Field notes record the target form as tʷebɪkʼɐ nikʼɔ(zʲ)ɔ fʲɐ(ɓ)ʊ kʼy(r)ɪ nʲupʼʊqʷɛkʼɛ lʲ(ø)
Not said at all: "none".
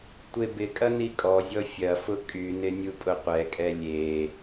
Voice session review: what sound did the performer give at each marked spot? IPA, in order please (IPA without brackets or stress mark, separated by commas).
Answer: zʲ, f, n, e